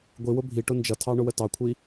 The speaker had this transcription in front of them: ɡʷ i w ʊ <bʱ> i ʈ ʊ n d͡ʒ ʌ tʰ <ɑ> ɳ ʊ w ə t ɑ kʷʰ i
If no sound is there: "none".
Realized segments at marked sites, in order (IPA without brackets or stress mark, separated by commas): bʱ, ɑ